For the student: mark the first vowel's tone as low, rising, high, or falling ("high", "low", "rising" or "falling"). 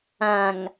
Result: low